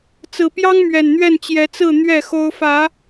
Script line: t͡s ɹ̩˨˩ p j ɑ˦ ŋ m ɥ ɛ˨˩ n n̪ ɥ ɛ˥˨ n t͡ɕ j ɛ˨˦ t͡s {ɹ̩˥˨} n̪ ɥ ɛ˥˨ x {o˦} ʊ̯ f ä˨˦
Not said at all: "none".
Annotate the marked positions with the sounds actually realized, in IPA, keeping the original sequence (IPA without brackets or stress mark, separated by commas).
ɹ̩˥˨, o˦